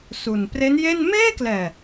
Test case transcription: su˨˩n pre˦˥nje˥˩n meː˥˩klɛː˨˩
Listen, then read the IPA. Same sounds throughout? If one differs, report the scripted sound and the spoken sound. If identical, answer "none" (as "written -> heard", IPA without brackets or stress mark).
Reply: none